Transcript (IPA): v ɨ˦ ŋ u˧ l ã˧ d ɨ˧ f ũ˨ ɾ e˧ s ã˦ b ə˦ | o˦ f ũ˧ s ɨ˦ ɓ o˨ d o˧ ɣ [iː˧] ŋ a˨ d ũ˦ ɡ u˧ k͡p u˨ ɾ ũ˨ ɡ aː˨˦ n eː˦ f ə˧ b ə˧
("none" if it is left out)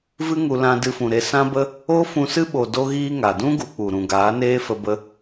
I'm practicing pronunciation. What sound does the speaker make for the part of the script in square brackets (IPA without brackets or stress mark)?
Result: iː˧